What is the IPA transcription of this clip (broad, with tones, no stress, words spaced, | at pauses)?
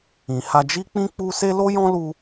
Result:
ĩ˨ha˧d͡ʒi˦k͡pĩ˦ k͡pu˦se˦ lo˦jɔ̃˦lu˧